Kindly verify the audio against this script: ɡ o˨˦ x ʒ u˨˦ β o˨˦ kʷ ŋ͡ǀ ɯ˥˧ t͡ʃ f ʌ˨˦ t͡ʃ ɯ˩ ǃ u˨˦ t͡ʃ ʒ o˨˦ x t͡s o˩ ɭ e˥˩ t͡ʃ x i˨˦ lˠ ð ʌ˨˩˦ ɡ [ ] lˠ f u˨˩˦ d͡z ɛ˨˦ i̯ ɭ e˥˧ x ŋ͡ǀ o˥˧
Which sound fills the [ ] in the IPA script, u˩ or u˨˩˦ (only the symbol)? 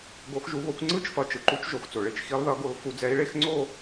u˨˩˦